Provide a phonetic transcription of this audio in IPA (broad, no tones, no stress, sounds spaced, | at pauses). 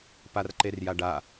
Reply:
p a r ǃ e r j a ɖ a